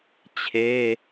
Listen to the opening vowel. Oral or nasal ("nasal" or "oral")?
oral